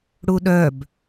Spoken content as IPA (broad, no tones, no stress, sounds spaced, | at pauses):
ɽ u ɗ œ b